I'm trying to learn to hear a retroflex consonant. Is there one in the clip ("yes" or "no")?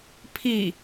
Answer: no